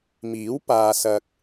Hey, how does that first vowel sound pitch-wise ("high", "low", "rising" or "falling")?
rising